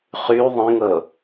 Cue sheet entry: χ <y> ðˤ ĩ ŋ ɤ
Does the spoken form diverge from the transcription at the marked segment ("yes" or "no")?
no